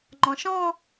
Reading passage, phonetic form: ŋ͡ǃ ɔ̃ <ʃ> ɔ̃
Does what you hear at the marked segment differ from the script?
no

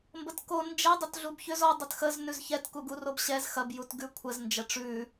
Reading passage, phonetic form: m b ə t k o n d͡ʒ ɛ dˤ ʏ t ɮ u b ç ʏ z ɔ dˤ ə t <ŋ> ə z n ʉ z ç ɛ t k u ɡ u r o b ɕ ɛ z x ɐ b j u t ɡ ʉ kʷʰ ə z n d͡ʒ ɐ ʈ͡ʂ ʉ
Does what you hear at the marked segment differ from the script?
yes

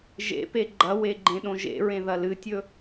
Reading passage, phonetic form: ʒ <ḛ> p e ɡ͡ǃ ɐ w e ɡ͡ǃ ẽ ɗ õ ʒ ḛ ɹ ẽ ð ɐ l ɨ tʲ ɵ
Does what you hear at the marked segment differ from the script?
no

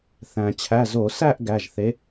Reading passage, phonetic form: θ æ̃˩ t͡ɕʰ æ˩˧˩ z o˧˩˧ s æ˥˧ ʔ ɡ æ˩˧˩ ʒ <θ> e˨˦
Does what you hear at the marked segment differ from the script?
no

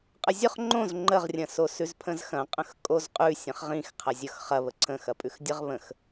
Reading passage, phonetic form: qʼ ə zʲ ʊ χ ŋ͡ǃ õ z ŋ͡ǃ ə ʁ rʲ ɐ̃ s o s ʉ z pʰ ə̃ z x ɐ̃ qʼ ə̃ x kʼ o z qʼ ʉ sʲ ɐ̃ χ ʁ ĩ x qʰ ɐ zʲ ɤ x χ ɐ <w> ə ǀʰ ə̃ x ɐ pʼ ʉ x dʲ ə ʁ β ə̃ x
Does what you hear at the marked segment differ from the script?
yes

